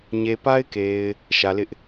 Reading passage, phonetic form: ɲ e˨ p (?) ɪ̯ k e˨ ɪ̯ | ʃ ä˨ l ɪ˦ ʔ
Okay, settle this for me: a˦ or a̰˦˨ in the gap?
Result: a˦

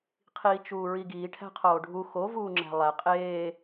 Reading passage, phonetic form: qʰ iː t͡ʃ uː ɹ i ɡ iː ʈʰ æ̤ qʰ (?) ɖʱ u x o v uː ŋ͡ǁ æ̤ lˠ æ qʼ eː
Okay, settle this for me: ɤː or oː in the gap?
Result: oː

